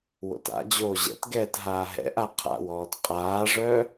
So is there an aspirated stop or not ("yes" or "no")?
yes